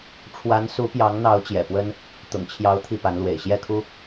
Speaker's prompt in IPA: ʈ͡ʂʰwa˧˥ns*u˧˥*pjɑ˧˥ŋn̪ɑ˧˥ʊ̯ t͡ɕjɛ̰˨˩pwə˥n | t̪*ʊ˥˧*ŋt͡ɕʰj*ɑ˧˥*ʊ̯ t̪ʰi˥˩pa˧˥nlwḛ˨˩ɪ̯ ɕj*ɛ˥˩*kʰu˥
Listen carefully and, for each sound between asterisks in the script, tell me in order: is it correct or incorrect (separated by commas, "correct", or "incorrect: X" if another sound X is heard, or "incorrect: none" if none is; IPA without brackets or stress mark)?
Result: correct, incorrect: ʊ̰˨˩, correct, correct